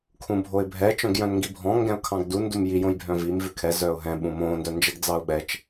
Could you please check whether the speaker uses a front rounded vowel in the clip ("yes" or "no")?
yes